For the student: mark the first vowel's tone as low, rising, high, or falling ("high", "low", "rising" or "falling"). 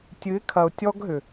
rising